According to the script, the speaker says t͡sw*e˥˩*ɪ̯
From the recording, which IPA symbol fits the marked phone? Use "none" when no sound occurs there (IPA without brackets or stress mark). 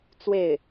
e˥˩